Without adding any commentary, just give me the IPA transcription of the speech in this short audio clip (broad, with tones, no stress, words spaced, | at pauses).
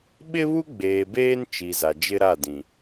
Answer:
ɓɪ˦βu˦ ɡ͡beː˨beː˦n t͡ʃi˨za˨d͡ʒɪ˦ ɾa˦˨dĩ˨